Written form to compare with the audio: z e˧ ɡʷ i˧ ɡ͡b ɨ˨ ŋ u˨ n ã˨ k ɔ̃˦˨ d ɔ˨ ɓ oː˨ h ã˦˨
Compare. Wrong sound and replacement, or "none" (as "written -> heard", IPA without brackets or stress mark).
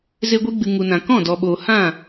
none